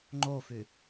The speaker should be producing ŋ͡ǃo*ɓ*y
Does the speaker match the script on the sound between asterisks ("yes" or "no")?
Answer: no